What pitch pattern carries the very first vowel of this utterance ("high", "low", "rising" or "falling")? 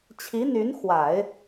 rising